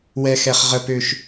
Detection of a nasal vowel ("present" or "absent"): absent